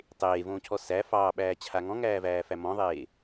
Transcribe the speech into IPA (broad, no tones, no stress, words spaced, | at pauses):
tˤeːvõːcʰɔ sæ fɑːɓæːt͡ɕʰa ŋɔ̃ŋæːvæːfæ mɔ̃ðˤeː